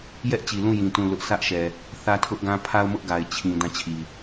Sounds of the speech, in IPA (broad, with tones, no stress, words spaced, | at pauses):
jɛ˦ʔt͡ɕi˨ lũ˦˨jĩ˨ tũ˦˨lʊ˦ʔ sʰä˦ʔʃɛ˨ | θä˦tʰʊ˦ʔɡã˦ pʰa˦ʊ̯mʊ˦ʔɡa˨ɪ̯ t͡ɕʰĩ˨ dã˦˨t͡ɕʰi˨